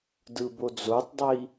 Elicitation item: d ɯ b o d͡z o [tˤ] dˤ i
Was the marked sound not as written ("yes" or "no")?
no